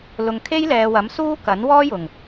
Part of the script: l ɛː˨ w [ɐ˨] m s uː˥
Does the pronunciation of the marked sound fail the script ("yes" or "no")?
yes